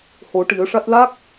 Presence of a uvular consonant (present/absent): absent